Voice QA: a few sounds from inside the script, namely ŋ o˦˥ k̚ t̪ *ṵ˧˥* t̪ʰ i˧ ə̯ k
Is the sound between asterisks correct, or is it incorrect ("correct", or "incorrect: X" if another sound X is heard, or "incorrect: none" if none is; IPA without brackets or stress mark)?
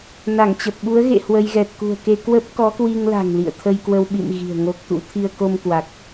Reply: correct